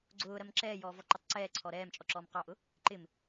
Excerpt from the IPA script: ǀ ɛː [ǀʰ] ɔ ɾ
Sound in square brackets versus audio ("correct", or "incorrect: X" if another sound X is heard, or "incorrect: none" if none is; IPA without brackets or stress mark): correct